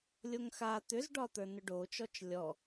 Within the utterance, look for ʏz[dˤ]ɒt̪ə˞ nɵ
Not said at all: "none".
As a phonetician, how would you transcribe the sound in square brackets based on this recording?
ɖ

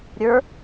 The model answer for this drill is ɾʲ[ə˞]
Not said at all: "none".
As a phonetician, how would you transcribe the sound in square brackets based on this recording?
ə˞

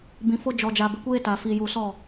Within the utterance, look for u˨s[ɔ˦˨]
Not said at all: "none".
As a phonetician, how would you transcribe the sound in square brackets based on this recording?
ɔ˦˨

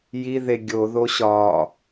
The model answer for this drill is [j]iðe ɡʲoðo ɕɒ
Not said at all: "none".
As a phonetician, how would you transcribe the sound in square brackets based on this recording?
j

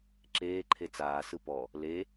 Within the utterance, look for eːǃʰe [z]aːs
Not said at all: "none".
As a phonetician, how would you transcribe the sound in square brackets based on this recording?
t͡s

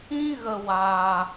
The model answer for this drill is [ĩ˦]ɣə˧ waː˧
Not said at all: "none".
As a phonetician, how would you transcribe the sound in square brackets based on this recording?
ĩ˦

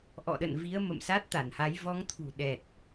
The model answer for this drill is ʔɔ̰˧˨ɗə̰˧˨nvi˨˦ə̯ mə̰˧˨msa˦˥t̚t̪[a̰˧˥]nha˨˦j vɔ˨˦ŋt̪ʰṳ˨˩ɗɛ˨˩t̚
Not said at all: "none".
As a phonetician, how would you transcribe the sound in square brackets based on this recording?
a˧˩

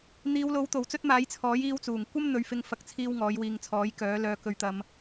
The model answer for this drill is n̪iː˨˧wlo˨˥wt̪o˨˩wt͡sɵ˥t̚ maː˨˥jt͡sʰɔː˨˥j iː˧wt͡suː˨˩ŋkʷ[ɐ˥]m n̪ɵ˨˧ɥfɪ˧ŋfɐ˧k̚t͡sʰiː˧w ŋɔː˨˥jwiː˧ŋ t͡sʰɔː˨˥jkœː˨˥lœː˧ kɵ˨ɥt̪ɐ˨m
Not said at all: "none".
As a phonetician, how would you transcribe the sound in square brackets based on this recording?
ɐ˥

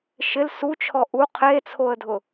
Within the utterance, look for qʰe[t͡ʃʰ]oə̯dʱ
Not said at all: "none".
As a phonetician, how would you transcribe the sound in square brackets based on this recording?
t͡sʰ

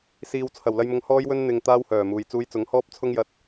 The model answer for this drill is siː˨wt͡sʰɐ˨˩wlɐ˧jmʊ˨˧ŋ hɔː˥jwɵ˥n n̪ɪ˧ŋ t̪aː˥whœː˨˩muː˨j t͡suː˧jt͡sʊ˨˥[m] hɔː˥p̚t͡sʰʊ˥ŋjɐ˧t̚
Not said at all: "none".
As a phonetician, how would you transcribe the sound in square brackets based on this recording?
ŋ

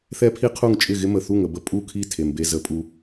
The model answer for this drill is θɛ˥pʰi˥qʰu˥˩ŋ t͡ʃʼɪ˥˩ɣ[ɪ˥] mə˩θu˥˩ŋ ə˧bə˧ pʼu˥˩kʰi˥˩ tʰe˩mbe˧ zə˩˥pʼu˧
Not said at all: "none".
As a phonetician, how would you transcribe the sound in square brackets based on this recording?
ɪ˥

